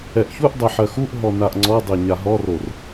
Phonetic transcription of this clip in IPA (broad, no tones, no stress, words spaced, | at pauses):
ɛʔçuʔdˤɛ ħɜxuʔɦɔ naʔŋ͡ǀɔdˤe ɲaɦɔror